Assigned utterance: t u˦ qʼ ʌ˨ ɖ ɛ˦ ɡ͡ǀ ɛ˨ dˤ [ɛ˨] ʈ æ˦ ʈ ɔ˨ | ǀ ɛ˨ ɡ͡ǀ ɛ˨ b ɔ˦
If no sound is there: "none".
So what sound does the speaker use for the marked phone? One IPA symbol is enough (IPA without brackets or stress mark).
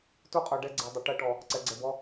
ɪ˨